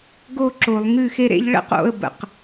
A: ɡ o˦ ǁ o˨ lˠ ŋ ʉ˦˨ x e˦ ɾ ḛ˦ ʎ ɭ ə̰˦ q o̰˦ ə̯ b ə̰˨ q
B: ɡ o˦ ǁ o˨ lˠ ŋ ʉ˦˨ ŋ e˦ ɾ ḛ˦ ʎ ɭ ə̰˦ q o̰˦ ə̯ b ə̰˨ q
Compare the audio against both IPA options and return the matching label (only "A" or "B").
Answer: A